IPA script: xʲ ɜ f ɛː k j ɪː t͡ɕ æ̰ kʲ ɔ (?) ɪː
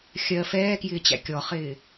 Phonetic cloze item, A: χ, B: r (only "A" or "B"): A